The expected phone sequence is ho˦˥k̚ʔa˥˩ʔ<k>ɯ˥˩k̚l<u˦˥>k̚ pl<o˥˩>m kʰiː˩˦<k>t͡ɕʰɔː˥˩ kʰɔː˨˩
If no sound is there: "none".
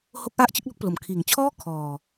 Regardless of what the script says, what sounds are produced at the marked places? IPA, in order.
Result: t͡ɕ, o˦˥, o˨˩, ŋ

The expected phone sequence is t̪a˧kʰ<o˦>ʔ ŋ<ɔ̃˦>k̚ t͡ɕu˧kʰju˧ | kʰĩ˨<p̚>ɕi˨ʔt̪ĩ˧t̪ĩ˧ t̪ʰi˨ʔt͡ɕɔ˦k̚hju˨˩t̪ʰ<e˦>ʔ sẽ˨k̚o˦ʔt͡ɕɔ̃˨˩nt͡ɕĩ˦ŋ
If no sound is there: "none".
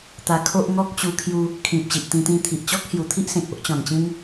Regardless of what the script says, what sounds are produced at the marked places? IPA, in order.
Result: o˦, ɔ˦, p̚, i˦

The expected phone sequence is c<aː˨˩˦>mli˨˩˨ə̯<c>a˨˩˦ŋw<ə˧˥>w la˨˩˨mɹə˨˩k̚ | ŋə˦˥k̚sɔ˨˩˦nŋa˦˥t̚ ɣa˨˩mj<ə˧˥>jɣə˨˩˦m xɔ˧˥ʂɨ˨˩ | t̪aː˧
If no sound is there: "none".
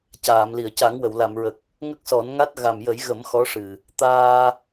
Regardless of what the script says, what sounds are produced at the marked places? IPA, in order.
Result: aː˨˩˨, c, ə˨˩˨, ə˨˩˦

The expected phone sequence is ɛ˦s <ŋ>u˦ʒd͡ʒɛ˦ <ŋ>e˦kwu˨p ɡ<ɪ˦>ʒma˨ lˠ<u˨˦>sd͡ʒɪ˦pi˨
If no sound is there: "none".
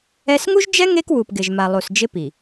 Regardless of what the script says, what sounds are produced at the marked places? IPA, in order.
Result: ŋ, ŋ, ɪ˨, u˨

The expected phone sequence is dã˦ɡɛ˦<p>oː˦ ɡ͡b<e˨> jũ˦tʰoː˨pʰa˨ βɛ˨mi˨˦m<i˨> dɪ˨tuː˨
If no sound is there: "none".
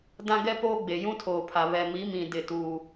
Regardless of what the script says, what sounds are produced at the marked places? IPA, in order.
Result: p, e˨, ĩ˨

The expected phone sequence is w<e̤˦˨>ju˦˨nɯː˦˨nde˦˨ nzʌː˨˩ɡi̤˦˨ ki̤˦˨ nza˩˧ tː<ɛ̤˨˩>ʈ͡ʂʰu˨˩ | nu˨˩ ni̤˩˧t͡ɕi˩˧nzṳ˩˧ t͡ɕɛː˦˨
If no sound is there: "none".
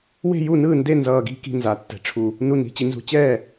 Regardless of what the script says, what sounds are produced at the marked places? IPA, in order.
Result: e̤˦˨, ɛ̤˩˧

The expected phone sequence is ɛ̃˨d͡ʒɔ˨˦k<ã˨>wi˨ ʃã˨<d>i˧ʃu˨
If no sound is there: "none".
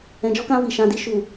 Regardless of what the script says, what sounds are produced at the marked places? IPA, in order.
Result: ã˧, d

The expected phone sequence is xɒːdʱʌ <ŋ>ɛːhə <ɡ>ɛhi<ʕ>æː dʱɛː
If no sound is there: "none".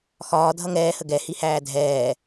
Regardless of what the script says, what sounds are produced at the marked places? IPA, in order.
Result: ŋ, ɡ, h

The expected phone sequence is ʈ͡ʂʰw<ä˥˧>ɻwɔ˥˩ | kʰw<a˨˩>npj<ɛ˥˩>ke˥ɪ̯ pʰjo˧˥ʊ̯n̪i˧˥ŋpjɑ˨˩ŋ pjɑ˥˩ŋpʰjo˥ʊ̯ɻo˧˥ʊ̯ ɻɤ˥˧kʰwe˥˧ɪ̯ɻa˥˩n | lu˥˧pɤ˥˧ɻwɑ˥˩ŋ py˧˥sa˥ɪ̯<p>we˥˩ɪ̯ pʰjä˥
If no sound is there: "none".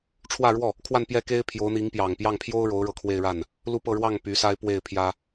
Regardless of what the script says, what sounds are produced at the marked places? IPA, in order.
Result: ä˥˧, a˥˧, ɛ˥˩, p

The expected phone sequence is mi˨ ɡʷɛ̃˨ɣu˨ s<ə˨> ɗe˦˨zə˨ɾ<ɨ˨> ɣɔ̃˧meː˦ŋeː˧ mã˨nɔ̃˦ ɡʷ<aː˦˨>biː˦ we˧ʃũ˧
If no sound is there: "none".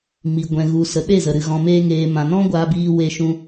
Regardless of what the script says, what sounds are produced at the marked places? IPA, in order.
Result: ə˨, ɨ˨, aː˦

